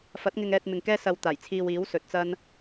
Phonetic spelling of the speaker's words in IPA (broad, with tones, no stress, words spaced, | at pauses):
fɐ˨˥t̚ŋɪ˧ŋ ɛː˧t̚mɪ˨ŋkɛː˥ sɐ˧wt̪aː˨˩jt͡sʰiː˧w iː˨˥wsɵ˨t̚t͡sɐ˥n